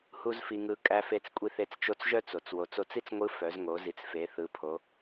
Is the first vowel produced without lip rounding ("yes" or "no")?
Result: no